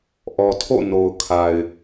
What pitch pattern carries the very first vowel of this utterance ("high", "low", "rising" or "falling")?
low